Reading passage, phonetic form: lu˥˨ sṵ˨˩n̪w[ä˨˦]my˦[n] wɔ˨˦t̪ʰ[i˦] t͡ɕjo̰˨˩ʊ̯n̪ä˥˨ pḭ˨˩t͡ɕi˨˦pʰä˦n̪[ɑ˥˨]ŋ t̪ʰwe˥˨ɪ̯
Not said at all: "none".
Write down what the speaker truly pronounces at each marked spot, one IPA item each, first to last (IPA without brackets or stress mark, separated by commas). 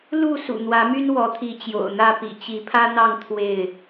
ä˨˦, n, i˨˦, ɑ˥˨